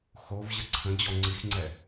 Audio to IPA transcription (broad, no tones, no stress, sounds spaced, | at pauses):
x o v ʑ ə ǀʰ ə̃ d͡ʑ ɔ ŋ͡ǀ i x ŋ͡ǀ ɛ